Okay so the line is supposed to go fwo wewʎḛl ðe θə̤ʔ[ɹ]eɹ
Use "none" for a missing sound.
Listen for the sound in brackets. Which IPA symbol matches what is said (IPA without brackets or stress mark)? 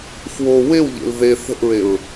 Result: ɹ